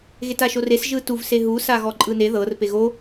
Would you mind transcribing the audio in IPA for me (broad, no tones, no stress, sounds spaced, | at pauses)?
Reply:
ɣ e t a ʃ o r e s ʒ ɯ t u v s e ɦ u s a ɣ ɔ ǃʼ ɯ n e ð ɤ r p e ɣ o